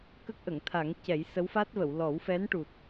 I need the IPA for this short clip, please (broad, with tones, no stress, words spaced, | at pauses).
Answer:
kə˦˥k̚ʔə˨˩˨ŋt̪ʰa˨˩˦ŋ cɛ˨˩˦jsə˧˥wfa˦˥t̚və˨˩˨w lɔ˨˩˦wfɛ˧˥nʈu˨˩t̚